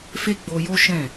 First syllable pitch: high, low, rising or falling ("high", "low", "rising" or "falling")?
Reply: high